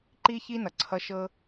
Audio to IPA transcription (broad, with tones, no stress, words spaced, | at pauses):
ǃi˦çi˦ nʌ˩ǀʰʌ˦ ʃɤ˥